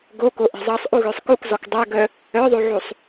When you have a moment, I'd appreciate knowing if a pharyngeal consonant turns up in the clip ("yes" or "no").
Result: yes